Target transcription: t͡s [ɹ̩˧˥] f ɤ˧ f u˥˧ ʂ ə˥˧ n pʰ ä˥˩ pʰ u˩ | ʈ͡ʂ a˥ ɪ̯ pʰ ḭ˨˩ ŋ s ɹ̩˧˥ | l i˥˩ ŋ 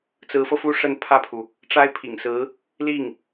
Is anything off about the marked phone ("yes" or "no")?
no